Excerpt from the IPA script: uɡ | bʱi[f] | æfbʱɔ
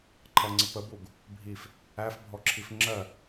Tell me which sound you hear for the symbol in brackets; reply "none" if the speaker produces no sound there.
f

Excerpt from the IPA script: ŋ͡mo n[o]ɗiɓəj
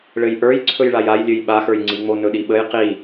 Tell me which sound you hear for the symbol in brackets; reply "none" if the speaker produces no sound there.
ɵ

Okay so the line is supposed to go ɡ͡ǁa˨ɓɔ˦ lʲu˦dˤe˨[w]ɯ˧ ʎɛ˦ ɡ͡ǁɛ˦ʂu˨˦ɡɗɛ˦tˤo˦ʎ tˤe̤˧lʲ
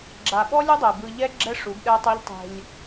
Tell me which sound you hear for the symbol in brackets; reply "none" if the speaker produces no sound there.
b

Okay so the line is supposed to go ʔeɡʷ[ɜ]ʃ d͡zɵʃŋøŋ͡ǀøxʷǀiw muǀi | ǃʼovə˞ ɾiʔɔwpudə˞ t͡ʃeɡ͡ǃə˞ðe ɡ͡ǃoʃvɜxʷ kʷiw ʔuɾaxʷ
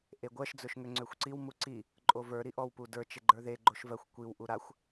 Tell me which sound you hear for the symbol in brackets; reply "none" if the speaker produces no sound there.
ɜ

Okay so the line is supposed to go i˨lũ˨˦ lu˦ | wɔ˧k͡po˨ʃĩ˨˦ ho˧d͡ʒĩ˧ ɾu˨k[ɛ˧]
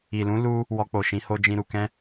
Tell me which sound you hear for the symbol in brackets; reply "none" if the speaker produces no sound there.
ɛ̃˧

